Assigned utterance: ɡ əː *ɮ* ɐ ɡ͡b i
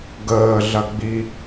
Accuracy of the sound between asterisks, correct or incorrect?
correct